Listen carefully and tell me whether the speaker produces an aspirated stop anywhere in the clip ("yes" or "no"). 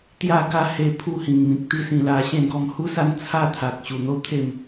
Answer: yes